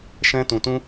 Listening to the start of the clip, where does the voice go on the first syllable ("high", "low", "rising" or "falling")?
high